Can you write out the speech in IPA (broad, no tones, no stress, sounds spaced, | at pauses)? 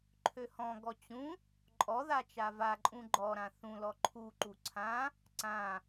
ǃʰ ø h ɔ̃ ɡ ɔ t͡ɕ ũ | ǃʼ ɔ ð a t͡ʃ a v a ǃʼ ũ ɡ͡ǃ ɔ ɾ ã θ ũ l ɔ ǃʰ u ǃ u ǀʰ ã | ǀ ã